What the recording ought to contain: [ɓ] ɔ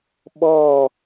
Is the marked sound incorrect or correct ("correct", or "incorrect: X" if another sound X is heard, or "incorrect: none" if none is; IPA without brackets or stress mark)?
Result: correct